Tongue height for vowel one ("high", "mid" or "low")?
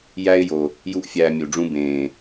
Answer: low